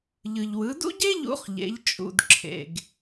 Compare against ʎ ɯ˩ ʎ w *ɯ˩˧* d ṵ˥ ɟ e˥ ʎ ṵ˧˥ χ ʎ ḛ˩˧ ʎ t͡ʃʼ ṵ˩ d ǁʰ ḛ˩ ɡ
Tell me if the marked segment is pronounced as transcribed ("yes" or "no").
yes